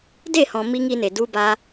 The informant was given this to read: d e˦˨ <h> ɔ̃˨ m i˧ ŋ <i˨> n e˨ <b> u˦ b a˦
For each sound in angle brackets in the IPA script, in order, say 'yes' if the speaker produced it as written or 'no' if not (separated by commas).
yes, no, no